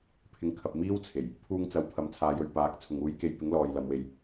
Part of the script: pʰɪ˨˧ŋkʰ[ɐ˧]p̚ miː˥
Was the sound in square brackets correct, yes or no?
no